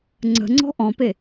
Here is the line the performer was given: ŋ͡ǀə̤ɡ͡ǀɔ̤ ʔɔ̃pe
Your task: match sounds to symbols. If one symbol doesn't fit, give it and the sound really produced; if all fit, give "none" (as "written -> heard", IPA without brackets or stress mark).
ɡ͡ǀ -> ŋ͡ǀ